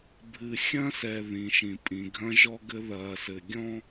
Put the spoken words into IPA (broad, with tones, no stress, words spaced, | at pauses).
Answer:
bʱɨ˨xʲɐ̃˦sɛ˨ ðĩ˨ʃĩ˨ pʼĩ˨ɡʱɐ̃˦ʒɔ˦ɡɘ˦ ðɐː˨sɘ˨ɡʲɔ̃˦